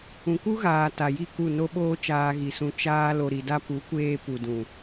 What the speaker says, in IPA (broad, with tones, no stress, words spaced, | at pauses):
ũ˨ku˦ɣaː˨ ta˨ji˦˨ ku˦˨no˦ɓoː˦ t͡ʃaː˧ɣi˨sũ˧ t͡ʃaː˧ lo˨ɾi˨da˧ pu˨˦kʷeː˧ pu˨dũ˨